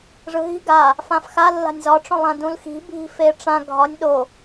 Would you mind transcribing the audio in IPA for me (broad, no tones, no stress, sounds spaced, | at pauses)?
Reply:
ʐ ɯ ɦ i̤ ɡ a | f ã f x a lː a̤ nʲ z ɒ ʈ͡ʂ õ lˠ ã d ũ l x i̤ bʱ i̤ f e ʈ͡ʂ ã ɡʱ ɒ nʲ ɗ o